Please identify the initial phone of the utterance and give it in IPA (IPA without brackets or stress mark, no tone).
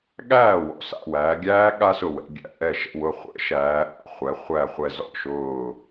ɠ